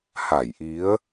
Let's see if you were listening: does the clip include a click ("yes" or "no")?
no